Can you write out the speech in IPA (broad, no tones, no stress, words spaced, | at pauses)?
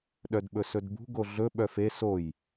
ɗœdɓɵsɵdbṳ ɡoɮɵ ɓœfe soj